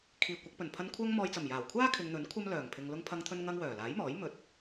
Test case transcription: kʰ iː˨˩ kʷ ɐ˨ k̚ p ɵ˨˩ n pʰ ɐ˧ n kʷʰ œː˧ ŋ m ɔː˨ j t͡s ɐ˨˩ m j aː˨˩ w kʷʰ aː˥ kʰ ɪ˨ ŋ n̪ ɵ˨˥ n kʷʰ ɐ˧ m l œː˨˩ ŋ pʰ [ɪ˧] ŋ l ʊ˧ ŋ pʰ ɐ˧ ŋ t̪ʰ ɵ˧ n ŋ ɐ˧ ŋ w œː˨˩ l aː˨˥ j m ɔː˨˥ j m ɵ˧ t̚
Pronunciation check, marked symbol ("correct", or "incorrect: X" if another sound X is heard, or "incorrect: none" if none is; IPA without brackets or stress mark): incorrect: ɪ˨